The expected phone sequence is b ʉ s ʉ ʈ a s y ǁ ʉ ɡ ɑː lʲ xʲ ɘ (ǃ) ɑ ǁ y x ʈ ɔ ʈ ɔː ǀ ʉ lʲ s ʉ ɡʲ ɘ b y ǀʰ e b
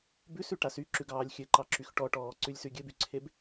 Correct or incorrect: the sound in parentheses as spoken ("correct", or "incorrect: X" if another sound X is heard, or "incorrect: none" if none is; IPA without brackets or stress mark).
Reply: correct